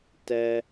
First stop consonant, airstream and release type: plain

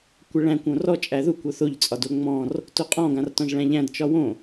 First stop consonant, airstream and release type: plain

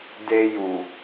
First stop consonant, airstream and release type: plain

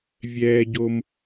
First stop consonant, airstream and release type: plain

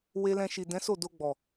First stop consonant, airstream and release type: plain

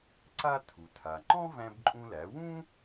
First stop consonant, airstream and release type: click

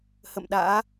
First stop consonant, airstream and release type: implosive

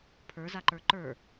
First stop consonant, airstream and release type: aspirated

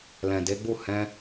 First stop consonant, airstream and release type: plain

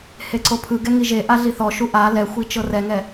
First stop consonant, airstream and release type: click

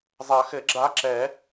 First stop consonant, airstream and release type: click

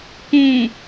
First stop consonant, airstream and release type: plain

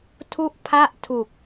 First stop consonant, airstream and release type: aspirated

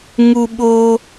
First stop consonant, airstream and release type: implosive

